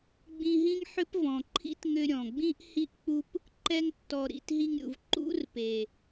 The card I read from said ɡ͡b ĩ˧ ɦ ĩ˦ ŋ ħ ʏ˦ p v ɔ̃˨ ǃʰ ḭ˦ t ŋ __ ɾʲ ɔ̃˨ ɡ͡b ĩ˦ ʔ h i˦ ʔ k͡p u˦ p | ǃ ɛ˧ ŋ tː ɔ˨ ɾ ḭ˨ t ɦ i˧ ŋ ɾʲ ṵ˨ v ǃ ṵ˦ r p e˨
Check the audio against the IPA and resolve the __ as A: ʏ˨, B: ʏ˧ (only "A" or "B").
B